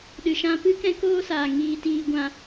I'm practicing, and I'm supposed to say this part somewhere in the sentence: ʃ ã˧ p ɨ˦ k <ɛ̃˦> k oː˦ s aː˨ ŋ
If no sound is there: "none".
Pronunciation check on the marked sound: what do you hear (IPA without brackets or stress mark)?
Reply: ɛ̃˦